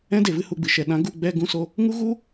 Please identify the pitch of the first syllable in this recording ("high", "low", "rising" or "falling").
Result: high